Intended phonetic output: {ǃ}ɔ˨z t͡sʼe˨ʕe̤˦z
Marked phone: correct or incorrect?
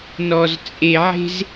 incorrect: n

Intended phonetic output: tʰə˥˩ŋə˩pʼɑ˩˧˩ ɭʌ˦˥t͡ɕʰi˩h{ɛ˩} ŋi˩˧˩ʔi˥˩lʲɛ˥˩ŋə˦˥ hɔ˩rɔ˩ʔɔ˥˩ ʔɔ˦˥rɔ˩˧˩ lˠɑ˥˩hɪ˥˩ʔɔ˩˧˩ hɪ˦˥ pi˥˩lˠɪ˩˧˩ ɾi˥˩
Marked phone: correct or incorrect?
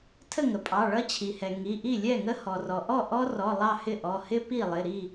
correct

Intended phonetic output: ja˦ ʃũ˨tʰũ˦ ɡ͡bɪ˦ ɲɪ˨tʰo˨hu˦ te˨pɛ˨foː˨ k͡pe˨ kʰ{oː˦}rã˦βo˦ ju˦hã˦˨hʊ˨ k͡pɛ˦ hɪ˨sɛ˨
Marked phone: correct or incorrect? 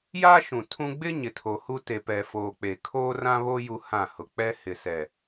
correct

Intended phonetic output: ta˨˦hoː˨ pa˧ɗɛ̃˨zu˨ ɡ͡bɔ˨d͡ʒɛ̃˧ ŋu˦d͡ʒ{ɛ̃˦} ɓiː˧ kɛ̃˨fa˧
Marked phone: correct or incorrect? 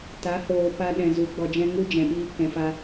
incorrect: ɛ̃˨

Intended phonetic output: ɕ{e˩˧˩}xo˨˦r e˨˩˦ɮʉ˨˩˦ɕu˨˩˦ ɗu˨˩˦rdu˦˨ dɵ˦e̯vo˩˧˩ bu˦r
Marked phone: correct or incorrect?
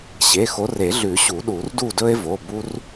correct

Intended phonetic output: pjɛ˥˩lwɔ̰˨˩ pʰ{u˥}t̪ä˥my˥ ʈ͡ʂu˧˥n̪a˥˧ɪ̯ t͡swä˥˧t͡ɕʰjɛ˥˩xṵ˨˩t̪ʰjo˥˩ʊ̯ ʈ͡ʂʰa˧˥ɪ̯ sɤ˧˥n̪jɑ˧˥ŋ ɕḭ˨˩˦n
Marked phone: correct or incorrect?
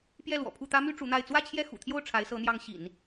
incorrect: u˥˩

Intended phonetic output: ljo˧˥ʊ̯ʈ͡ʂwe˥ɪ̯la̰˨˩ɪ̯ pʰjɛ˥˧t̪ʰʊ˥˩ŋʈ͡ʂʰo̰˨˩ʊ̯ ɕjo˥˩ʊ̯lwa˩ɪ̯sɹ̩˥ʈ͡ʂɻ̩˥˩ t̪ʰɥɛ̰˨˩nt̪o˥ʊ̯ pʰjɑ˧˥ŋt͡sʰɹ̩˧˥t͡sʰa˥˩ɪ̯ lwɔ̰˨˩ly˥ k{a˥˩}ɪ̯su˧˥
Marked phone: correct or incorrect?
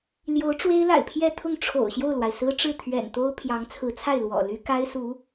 incorrect: a˥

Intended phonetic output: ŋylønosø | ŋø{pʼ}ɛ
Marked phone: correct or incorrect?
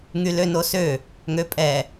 correct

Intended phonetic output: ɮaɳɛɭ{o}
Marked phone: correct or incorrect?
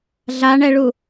incorrect: u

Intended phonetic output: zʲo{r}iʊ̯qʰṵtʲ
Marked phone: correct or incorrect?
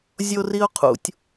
correct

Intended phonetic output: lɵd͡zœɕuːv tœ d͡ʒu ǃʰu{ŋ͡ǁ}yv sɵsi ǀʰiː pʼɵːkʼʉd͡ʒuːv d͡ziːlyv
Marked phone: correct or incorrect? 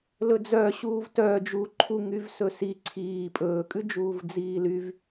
incorrect: ŋ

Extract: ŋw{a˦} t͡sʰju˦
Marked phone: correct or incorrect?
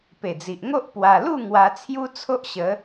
incorrect: a˧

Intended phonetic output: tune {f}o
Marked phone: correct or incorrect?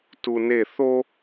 incorrect: θ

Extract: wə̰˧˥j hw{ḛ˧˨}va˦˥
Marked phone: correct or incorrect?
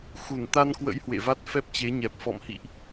correct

